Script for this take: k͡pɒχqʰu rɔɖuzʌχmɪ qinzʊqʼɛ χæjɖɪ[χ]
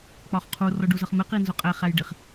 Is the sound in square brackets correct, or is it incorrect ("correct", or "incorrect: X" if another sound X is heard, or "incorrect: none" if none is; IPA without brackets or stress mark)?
correct